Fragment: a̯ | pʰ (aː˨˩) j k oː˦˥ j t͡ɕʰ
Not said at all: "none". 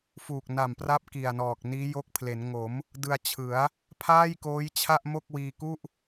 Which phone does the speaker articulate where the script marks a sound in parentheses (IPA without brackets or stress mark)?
aː˥˩